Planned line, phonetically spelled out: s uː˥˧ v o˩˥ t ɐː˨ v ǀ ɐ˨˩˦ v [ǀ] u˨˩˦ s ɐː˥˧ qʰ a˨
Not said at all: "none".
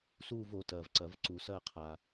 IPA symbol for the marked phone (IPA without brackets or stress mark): ǀ